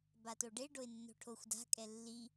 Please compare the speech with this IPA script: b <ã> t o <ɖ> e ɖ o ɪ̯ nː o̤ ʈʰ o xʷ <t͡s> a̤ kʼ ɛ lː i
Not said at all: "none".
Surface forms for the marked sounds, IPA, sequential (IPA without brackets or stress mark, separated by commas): a, ɖ, d